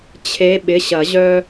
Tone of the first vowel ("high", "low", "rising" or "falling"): rising